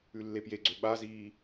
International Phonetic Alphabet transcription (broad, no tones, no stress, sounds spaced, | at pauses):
ʉ lː e p j e ɡ͡ǀ ø ɓ a z iː